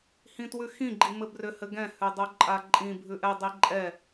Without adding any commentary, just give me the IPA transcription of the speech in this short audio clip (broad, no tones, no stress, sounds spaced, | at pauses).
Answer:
h ĩ t w ʉ x ĩ ɡ͡ǃ i m ɘ b r ʏ h ɘ ɡ ɛ̃ h ʉ dˤ o ǃʼ a ǃʼ ĩ bʱ ʉ ʔ ɛ dˤ i ǃʼ ɛ